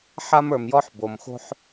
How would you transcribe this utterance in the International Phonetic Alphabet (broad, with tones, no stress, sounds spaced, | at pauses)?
ħ a˦ m ə˞˩ m j ɔ˦ ħ b o˩ m x o̤˦ ħ